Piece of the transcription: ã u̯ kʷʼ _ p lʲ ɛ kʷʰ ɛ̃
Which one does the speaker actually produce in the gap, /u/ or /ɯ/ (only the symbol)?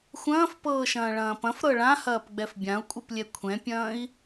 ɯ